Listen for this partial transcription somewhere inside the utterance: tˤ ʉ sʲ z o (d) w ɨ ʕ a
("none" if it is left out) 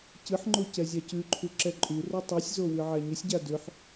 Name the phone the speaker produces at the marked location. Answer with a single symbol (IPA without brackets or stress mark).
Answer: none